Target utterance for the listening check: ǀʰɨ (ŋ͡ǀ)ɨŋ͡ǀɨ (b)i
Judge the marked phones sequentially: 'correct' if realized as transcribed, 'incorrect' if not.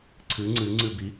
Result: correct, correct

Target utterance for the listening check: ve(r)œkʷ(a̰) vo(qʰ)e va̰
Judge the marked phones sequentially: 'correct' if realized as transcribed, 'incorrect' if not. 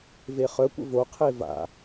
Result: incorrect, incorrect, correct

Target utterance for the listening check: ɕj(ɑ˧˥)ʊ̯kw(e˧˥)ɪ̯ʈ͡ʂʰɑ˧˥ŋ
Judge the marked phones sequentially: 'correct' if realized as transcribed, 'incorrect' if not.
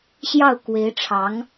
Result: incorrect, correct

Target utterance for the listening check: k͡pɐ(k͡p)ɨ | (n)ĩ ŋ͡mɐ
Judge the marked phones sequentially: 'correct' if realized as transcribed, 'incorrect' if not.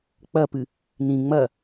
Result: incorrect, correct

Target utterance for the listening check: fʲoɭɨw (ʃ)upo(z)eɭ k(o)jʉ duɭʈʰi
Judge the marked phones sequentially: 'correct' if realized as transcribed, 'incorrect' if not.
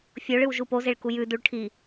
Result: incorrect, correct, incorrect

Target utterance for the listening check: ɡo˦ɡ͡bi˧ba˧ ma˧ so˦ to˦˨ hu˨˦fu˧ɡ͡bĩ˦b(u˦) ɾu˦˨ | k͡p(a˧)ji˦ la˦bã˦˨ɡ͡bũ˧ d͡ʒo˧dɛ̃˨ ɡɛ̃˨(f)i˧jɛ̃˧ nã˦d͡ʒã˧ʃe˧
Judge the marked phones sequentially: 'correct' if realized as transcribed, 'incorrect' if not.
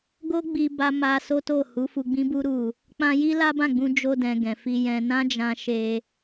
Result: correct, incorrect, correct

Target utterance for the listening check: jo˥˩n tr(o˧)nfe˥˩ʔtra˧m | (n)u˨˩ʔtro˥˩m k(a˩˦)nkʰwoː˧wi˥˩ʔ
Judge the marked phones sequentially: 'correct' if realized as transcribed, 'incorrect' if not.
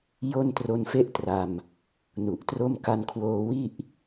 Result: correct, correct, incorrect

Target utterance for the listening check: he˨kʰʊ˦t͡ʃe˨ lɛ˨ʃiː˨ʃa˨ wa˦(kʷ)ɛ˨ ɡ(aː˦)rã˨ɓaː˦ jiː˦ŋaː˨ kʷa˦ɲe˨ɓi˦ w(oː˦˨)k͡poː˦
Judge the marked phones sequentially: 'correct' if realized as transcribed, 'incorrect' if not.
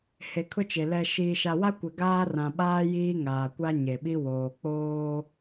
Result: correct, correct, incorrect

